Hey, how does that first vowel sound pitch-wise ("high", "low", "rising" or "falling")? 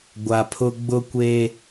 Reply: low